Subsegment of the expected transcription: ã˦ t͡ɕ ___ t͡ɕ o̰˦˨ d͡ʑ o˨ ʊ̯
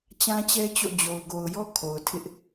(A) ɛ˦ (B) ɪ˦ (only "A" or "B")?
A